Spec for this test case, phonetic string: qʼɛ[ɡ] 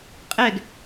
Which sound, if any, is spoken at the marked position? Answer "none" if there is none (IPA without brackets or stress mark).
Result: ɡ